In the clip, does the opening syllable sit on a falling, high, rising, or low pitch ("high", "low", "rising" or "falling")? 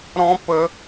high